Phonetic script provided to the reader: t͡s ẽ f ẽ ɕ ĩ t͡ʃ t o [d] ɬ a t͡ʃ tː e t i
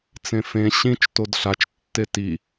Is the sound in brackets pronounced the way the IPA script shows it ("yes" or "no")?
yes